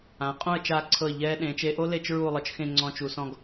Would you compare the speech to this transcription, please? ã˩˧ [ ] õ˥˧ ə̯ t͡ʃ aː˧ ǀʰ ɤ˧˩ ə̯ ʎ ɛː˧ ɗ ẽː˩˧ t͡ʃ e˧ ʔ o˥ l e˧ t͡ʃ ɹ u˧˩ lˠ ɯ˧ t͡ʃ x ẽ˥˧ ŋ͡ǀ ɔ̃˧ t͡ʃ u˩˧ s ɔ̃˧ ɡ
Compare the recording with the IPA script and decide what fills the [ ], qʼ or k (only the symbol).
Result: qʼ